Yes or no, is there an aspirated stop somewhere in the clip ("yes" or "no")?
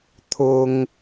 yes